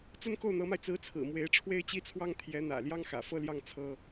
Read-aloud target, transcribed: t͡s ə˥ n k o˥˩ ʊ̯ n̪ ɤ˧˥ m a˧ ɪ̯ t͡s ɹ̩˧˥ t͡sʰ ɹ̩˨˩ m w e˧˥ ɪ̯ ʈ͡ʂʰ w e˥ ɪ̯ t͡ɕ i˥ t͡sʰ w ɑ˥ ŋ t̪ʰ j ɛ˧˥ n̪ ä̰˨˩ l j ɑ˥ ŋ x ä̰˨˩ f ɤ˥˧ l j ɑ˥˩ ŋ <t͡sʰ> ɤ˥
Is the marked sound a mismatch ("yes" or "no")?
no